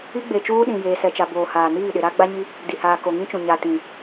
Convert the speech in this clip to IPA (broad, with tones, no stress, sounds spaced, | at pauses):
i˦ ɡ͡b e˨ t͡ʃ uː˦ ɗ ĩ˨ j eː˨ s ɛ˨ t͡ʃ a˨ b oː˨ h aː˨ n iː˦˨ ɗ ɪ˨ ɾ a˦ ɡ͡b a˦ ɲ i˦ | d i˨ h aː˨ k o˨ ŋ ĩ˦ t͡ʃ ũ˨ ɲ a˨ t ĩ˨